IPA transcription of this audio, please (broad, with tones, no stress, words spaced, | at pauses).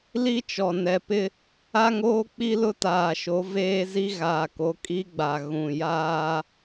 li˦t͡ʃɔ˨nɛ˨ pɪ˦ | a˦ŋoː˦ k͡pi˦lʊ˦taː˨ʃo˨˦ veː˦zi˦ ɣaː˨ko˨˦ kʼi˦ɡ͡ba˨ ɣũ˨jaː˦